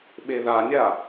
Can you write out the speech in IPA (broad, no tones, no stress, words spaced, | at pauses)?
ɓeðanʲa